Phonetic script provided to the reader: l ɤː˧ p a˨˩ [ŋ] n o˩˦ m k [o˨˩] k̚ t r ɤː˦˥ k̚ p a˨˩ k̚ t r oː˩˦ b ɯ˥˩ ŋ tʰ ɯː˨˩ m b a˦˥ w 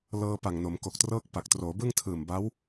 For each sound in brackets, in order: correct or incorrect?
correct, correct

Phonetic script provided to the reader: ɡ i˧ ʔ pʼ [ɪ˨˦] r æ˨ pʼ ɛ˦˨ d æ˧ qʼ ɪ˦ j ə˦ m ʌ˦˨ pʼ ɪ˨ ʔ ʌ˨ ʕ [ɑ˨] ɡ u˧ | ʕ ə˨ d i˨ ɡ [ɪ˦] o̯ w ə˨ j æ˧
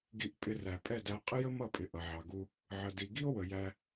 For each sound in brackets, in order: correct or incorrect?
incorrect: ɪ˧, correct, incorrect: i˦

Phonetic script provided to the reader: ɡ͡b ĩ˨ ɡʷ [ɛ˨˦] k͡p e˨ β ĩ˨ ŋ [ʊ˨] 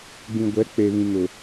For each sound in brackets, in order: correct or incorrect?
correct, correct

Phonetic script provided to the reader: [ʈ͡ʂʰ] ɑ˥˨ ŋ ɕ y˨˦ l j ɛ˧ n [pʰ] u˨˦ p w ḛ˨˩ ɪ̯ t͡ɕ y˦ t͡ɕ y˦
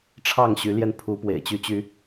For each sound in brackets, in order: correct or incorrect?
correct, correct

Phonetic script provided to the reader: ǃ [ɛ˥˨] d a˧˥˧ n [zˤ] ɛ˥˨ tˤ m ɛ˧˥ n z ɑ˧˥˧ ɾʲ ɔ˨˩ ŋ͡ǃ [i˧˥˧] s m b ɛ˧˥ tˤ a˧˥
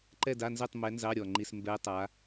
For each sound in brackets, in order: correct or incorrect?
correct, incorrect: z, correct

